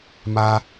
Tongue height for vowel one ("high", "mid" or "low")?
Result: low